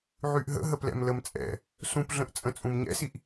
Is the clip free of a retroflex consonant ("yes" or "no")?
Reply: yes